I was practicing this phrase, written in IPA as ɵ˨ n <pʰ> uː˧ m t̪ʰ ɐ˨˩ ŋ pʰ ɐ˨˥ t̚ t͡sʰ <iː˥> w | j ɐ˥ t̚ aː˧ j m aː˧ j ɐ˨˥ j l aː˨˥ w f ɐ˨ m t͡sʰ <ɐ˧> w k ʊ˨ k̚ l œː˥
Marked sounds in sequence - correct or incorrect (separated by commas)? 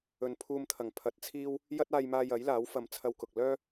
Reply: correct, correct, correct